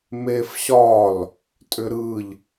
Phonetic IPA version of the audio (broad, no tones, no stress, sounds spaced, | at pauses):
m e f ɕ ɒ l | tʼ ʏ ɾ ɯ ʎ